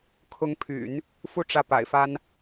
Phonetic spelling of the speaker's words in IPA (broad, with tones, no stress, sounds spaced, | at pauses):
kʰ ʊ˧˥ ŋ pʰ y̰˨˩˦ n | f u˥ ʈ͡ʂ ä˥˩ p a̰˨˩ ɪ̯ f a˥ n